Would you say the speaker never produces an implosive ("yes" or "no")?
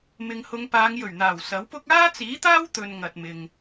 yes